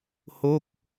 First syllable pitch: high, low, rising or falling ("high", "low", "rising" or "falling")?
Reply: falling